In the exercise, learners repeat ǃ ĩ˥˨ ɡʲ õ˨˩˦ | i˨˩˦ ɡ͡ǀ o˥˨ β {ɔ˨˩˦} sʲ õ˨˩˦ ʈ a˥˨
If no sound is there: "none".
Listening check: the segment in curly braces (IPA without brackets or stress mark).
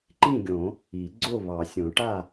ɑ˨˩˦